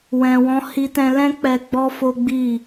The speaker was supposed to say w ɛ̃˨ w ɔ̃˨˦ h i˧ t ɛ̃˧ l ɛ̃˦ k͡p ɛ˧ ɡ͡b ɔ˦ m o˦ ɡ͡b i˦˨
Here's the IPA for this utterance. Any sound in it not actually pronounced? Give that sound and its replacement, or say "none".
m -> f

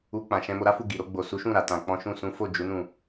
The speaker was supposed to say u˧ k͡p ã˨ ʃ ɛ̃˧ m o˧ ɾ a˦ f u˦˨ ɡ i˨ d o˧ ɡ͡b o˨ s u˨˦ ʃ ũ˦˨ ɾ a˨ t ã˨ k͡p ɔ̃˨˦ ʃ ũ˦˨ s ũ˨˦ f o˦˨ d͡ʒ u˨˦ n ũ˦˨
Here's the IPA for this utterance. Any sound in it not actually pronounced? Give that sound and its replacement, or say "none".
d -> ɾ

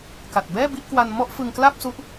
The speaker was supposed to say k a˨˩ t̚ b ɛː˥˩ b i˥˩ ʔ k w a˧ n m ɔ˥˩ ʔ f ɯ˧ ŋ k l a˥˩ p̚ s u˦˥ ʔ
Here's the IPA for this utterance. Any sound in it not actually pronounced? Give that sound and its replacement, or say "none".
none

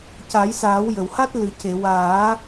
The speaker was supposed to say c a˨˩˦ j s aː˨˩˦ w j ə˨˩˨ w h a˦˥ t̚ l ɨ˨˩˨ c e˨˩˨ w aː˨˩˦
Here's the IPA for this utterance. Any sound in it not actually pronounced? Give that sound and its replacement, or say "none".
none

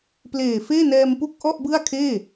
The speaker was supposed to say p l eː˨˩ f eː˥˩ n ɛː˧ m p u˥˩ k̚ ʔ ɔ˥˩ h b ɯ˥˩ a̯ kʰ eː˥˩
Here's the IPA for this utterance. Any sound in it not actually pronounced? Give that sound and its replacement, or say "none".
h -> ʔ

